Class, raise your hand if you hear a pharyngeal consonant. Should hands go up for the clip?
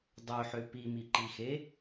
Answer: yes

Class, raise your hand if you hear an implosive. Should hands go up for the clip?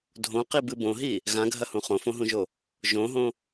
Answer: no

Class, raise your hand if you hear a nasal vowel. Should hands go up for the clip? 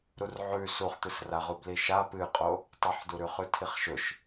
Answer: no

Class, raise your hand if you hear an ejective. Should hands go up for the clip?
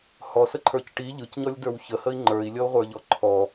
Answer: no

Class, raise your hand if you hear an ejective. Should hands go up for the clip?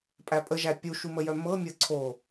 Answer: yes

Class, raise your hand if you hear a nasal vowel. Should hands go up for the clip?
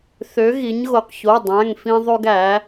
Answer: yes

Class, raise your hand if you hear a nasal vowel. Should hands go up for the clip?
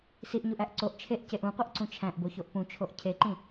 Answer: yes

